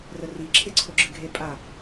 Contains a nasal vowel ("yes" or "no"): no